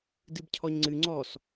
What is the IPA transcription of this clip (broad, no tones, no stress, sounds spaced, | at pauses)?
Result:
d ɨ b cʰ ɔ ɲ ŋ͡ǀ ɨ ŋ͡ǀ ɔ s